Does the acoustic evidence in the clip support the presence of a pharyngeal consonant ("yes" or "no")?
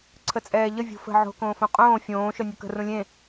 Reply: yes